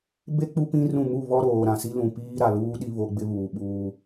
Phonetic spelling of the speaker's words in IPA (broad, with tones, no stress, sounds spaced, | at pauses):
b e˦ k͡p u˦ p ĩ˦ r ũ˦˨ m u˦˨ β ɔ˦ ɾ oː˨ ɾ ã˨ s i˦ l ũ˨ p iː˦ ɾ a˨ l uː˦ ɗ i˦ β o˦ ɡ͡b ɪ˦ β uː˨ ɓ uː˦